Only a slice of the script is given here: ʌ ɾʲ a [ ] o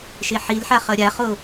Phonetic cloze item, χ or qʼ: χ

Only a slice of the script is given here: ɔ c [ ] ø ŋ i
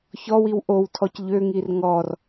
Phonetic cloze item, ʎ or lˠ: ʎ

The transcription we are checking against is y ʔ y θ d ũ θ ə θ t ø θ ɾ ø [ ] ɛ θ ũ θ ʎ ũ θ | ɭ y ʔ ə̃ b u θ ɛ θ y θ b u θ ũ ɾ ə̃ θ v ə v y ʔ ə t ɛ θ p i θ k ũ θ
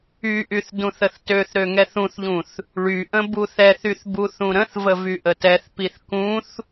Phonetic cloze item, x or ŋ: ŋ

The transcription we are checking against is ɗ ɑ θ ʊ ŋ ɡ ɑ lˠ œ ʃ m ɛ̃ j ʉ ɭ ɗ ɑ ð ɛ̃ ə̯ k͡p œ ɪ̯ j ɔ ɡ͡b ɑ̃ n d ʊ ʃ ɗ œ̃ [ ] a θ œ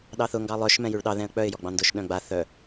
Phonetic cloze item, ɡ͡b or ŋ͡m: ɡ͡b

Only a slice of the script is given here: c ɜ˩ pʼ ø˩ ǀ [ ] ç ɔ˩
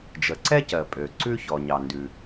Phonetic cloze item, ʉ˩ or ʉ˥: ʉ˥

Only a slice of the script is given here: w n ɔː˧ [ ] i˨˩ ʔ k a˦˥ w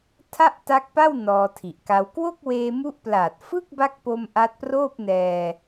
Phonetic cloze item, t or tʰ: tʰ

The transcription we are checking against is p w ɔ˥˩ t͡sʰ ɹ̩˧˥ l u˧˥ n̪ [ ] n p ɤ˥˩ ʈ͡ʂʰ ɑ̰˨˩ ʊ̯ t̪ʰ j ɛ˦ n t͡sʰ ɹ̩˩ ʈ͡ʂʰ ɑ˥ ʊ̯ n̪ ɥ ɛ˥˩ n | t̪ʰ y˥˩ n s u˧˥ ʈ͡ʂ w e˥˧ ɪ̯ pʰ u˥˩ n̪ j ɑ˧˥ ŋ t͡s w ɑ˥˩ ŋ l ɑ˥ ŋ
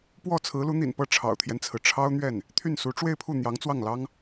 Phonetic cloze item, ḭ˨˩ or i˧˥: ḭ˨˩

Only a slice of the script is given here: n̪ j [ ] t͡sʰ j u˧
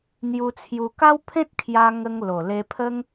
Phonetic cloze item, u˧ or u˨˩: u˧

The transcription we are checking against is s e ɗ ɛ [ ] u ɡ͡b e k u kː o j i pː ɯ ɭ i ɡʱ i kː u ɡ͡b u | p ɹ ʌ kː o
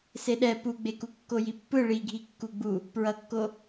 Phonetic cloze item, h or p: p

